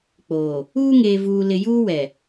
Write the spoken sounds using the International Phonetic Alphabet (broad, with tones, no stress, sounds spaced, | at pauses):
k͡p oː˨ | uː˦ ŋ eː˨ v uː˨ l ɪ˨ j uː˦ w ɛ˨